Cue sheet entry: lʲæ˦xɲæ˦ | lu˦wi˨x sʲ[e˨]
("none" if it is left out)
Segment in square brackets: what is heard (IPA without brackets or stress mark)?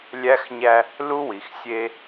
e˦